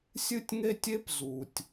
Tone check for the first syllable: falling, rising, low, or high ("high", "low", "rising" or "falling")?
high